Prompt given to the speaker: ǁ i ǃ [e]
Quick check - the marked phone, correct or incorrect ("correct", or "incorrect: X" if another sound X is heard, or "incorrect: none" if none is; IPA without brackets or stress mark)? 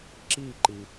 incorrect: i